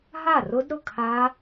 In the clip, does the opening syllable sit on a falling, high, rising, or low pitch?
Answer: falling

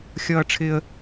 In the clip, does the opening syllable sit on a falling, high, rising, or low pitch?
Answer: high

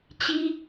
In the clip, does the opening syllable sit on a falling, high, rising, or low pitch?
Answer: high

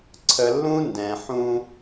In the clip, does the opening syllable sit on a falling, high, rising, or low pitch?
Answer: low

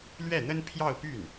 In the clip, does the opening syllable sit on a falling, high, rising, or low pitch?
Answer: falling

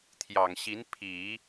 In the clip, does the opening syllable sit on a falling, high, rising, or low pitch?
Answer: low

